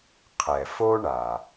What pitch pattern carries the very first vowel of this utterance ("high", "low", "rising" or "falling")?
low